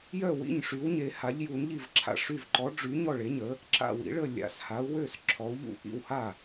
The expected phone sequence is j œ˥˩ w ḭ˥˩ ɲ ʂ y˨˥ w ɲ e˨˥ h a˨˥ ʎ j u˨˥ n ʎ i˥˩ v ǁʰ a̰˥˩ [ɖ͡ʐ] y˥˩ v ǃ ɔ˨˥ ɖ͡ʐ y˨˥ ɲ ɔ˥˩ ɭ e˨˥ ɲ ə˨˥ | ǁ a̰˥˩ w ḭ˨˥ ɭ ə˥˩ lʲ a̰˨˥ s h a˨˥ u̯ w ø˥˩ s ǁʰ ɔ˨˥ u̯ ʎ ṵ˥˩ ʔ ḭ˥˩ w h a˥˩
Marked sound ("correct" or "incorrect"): incorrect